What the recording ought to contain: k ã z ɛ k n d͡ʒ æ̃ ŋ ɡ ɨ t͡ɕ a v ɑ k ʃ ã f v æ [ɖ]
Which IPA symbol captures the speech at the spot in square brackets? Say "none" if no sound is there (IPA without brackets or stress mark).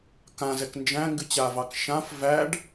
ɖ